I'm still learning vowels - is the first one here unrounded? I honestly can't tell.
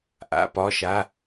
yes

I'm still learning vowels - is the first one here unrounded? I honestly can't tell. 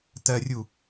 yes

